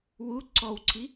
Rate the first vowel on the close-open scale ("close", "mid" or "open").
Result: close